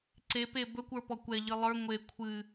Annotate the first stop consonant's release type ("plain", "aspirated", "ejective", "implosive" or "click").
click